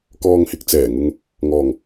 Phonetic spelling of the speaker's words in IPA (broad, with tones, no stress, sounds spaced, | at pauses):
k ɔː˧ ŋ h ɪ˧ k̚ t͡s ɛː˨˩ ŋ ʊ˧ ŋ | ŋ ɔː˨˩ ŋ